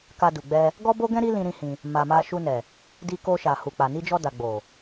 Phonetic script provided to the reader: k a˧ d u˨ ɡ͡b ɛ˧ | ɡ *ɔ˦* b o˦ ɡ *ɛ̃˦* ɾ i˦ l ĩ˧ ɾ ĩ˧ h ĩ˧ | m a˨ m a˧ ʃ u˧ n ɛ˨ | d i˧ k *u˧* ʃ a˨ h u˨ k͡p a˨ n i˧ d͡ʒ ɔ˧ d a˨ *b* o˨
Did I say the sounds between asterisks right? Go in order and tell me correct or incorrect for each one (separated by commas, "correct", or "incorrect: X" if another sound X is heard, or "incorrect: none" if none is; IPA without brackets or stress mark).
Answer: correct, correct, incorrect: o˧, incorrect: ɡ͡b